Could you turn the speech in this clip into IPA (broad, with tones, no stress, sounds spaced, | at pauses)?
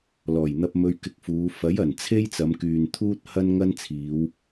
l ɔː˨˩ j n̪ ɐ˧ p̚ m ɵ˧ ɥ k ɪ˧ k̚ f uː˨˧ f ɐ˨˥ j ɐ˨˩ n t͡sʰ e˥ j t͡s ɐ˨˧ m k yː˨ n t̪ʰ uː˥ t̚ h ɐ˥ n ŋ ɐ˥ n t͡sʰ iː˨˧ w